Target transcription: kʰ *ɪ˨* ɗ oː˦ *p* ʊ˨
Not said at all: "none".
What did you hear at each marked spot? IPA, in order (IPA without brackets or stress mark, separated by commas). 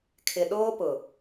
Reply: ɪ˨, p